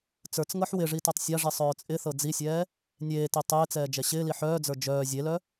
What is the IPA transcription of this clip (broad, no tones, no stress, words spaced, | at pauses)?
t͡sə˞t͡sŋɤħ wɪʐi tœtˤsʲaʐi sˤœːt͡sʼɪθɤ d͡zisʲɛː | nʲeːti tˤɪːt͡sɛː d͡ʒɛɕɪːli ħœːd͡zə˞ d͡ʒœː zʲelœ